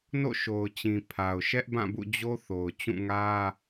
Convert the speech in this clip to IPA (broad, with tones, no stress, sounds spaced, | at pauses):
n o̰˦˨ ʃ o˨ ʊ̯ t͡ɕ ĩ˨ pʰ a˨ ʊ̯ ʃ ɛ˦ ʔ b ã˦˨ b ṵ˦˨ d͡ʑ o˦ θ o˨ ʊ̯ t͡ɕ ũ˦˨ ŋ ä˦